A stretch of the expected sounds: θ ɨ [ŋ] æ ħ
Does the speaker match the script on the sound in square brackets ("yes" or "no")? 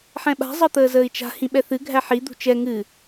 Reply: no